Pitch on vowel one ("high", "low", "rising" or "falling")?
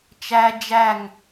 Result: high